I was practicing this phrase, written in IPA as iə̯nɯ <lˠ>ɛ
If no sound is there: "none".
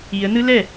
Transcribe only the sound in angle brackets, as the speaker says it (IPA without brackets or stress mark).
l